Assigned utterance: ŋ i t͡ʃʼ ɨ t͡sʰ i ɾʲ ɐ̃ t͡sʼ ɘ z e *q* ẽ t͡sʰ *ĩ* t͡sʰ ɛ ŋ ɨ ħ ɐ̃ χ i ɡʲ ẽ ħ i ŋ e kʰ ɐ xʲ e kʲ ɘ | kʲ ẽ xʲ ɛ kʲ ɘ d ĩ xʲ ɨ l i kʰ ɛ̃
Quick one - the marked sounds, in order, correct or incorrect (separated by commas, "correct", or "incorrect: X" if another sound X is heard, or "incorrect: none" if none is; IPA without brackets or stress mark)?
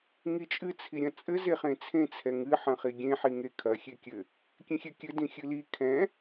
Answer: incorrect: χ, incorrect: ẽ